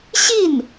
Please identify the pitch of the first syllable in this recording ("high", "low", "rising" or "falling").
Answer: falling